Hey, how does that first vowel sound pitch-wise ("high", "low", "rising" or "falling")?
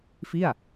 falling